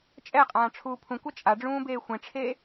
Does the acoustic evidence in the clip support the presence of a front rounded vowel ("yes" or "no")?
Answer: no